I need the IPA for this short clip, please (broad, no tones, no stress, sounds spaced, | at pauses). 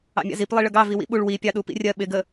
ɑ̰ mʲ ɑ̰ z i p lˠ i ɭ ə ɡ ɑ v i w ḭ ɓ u ɭ w i pʲ ɑ ɗ u p ḭ rʲ ɜ ɓ ɪ ɡ ə